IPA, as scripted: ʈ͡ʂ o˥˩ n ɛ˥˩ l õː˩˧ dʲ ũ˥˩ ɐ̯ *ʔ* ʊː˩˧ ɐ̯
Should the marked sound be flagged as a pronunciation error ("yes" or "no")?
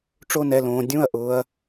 no